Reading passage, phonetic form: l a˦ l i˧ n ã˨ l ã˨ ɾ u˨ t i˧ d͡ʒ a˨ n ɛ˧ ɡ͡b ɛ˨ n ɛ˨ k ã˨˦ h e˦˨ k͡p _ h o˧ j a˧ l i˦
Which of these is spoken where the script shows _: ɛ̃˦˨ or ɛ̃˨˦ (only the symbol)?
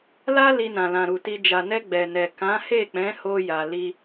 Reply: ɛ̃˨˦